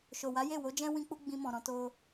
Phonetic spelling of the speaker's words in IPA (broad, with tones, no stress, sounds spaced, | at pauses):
ʃ o˨ w a˨˦ j e˦˨ w o˨˦ d͡ʒ ɛ̃˦ w ĩ˦ k͡p u˦ ɡ͡b ĩ˧ m ɔ̃˨ ɾ ɔ̃˧ t o˦